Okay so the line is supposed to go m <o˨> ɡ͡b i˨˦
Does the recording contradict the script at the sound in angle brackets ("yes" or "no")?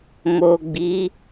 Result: no